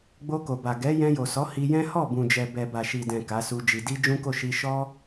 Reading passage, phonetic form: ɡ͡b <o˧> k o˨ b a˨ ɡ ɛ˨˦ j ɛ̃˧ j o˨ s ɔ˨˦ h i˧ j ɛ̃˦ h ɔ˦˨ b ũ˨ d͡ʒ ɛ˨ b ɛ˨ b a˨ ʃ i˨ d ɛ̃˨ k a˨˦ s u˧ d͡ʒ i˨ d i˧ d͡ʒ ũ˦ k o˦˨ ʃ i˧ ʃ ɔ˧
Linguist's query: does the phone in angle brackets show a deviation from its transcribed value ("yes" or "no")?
no